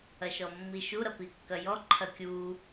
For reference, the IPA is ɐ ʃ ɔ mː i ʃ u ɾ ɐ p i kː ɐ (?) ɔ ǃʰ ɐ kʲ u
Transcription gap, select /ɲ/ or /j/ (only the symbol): j